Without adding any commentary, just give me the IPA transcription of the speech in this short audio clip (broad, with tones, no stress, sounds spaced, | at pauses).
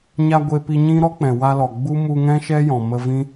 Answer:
ɲ a˧ ɡʷ e˧ p i˧ ɲ ĩ˦ ɾ ɔ˦ k͡p ɛ̃˨ w a˧ l ɔ˨ ɡ͡b u˦ m u˧ ŋ ɛ̃˦ ʃ ɛ˦ j ɔ̃˨ m ə˧ v ĩ˦